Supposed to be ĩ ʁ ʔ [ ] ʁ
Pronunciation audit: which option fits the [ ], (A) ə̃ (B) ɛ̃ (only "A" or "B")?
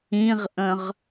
A